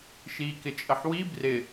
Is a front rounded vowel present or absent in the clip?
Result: absent